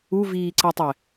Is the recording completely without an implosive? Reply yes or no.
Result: yes